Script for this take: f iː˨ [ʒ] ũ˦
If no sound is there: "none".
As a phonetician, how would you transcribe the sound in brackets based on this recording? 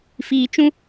t͡ʃ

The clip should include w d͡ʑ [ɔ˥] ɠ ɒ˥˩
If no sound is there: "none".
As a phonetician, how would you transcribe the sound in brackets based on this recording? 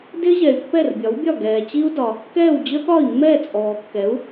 ə˥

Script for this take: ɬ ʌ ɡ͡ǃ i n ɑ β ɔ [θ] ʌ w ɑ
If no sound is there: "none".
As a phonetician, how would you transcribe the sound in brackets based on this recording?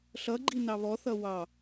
θ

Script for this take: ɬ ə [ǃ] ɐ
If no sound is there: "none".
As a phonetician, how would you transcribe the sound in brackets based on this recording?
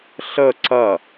ǀ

